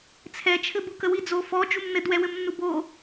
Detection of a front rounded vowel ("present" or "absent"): absent